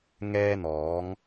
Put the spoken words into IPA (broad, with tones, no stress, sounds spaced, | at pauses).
ŋ ɛː˥ n̪ ɔː˨˥ ŋ